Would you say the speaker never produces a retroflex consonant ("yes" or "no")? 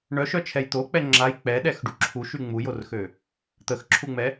no